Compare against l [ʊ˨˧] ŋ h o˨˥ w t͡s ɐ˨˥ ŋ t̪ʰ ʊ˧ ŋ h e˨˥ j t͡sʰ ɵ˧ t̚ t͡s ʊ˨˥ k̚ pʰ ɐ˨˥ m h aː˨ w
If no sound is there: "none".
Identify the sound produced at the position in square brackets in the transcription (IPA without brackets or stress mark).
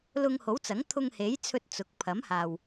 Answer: ʊ˧